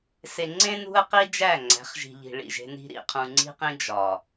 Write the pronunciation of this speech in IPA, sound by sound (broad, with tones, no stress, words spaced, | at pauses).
se˨ŋ͡ǀẽ˦ nṳ˦ə̯qi˦ d͡ʒæ˦˨ŋ͡ǀæ̤˨˦χʒi̤˨ʎi̤˨ ɭḭ˨ʒe̤˦ ni̤˦ɾḭ˨ qʰũ˨ŋ͡ǀi̤˦qĩ˦ d͡ʒɒ˨